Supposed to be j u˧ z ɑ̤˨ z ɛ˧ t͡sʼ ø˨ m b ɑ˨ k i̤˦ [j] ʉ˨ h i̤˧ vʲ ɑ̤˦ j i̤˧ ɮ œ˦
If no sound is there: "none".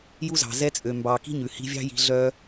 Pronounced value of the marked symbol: ɲ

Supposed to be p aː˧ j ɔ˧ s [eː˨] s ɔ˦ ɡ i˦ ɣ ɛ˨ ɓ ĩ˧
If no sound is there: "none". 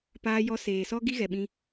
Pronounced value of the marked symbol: eː˨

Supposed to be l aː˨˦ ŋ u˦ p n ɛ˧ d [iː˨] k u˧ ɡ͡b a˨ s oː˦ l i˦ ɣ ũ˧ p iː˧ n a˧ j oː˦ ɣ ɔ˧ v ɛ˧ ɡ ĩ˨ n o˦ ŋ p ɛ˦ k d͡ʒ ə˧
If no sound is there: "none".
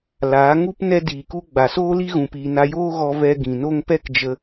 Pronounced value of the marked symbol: iː˨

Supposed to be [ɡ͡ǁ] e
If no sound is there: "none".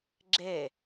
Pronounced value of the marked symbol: ɡ͡ǁ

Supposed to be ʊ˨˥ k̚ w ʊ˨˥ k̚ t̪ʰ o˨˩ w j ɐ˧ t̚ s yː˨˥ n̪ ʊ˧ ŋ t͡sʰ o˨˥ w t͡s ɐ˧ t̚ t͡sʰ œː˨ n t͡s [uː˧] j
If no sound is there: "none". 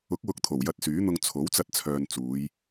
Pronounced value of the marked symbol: uː˨˧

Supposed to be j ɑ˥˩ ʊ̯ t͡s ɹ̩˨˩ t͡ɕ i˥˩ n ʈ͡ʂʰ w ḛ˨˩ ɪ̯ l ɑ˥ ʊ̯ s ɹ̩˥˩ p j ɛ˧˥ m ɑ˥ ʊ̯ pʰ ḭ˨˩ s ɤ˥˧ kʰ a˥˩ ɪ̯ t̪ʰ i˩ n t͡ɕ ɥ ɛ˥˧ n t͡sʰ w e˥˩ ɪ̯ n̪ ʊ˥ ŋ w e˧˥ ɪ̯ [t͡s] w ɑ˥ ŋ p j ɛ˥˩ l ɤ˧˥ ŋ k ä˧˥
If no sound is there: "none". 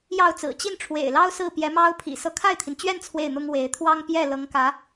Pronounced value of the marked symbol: t̪ʰ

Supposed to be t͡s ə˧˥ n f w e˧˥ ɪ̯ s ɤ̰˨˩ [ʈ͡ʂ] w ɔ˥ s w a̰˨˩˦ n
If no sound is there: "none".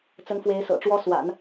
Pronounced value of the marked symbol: ʈ͡ʂ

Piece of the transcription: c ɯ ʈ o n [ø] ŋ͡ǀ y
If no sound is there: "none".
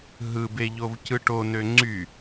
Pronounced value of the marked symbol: ø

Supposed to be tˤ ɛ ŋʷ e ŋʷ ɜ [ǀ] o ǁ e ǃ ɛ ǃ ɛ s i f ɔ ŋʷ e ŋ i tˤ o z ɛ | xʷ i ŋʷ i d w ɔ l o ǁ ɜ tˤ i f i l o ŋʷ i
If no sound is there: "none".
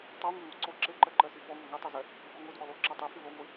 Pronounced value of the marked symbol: ǀ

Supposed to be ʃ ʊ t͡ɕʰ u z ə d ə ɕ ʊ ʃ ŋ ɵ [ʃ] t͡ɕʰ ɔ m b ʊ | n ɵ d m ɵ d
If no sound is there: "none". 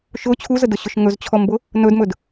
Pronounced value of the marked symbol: z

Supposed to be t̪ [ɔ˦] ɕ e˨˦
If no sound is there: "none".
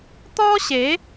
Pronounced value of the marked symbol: ɔ˦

